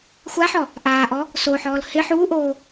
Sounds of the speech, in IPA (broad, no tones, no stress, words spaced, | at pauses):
xʷaħɔ | ʔaːʔɔ | soħɔːl hɪ ħuːʔoː